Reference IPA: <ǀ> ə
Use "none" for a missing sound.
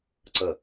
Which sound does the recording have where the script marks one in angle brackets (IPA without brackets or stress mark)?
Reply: ǀ